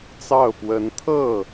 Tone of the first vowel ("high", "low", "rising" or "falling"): falling